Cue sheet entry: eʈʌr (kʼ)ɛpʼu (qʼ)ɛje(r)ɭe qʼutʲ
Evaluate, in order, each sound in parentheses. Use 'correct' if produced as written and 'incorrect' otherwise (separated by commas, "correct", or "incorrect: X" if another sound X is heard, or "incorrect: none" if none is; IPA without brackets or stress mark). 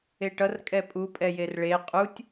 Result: correct, incorrect: pʼ, correct